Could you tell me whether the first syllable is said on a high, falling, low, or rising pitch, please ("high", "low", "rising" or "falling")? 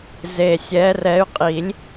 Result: low